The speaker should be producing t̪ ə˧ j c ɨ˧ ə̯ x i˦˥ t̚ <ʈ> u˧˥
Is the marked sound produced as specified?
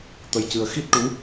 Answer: yes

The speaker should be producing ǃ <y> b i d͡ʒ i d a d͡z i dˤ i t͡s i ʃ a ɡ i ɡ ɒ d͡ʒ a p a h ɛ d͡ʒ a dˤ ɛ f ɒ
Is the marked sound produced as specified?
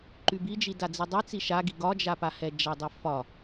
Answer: yes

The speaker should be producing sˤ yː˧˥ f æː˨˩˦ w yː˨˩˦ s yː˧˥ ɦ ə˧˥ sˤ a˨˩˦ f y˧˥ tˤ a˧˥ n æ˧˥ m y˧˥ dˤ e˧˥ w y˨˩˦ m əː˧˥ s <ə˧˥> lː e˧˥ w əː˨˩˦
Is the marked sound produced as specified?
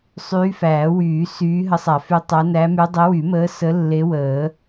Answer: yes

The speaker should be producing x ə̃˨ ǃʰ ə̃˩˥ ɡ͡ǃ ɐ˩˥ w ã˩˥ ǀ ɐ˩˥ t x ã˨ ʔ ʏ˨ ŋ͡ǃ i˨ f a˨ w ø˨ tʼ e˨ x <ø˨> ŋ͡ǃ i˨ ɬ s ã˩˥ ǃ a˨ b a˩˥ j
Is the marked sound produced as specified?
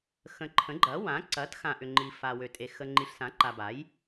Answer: no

